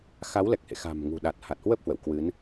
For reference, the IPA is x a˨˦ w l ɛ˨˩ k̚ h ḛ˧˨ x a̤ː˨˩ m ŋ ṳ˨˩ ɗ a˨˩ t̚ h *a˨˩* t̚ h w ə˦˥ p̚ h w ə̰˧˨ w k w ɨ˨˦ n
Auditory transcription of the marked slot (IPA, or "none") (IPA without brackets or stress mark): a˨˩